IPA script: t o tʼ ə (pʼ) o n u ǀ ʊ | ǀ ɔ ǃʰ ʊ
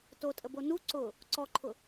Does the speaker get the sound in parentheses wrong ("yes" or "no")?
yes